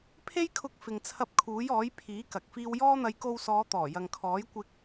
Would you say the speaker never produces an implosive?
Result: yes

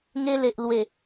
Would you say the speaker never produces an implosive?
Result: yes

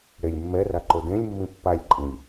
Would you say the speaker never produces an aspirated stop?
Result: yes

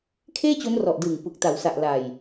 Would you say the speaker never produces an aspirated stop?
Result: no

